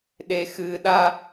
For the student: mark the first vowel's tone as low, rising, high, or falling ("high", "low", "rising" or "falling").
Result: low